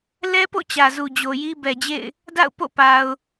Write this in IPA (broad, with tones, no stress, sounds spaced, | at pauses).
l ɛ˦ p o̰˦˨ t͡ɕ ä˨ z u˨ d͡ʑ o˨ j i˦ b ɛ˨ d͡ʑ ḛ˦˨ ɪ̯ | d a̰˦˨ ʊ̯ p o̰˦˨ p a˨ ʊ̯